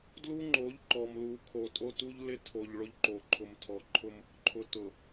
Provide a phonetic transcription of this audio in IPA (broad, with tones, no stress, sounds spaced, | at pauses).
d l u˦ ŋ͡ǃ o˨˦ ʎ ǃ ɔ˨ m l u˨ kʰ o˨ tʼ o˦ t u˦ ʎ l ɪ˦ tʰ o˨ ʎ ɭ ʊ˦ ʎ ǃ o˨ ǃʰ ʊ˨ m tʰ ɔ˨ ǃʰ ʊ˦ m | ǃʰ ʊ˨ t ʊ˨